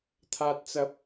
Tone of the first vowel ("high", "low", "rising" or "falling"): low